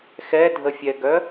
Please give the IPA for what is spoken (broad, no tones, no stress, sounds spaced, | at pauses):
x ɛ dʱ ə fʲ ɛ ɡ œ